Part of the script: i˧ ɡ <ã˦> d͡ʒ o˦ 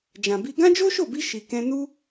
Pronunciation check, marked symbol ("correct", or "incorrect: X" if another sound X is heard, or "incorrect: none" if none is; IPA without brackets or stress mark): correct